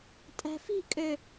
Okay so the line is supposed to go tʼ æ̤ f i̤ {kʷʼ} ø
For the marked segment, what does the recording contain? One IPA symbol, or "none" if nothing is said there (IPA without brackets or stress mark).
kʼ